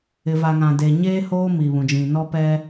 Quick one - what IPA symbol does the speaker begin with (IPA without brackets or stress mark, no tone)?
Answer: ɪ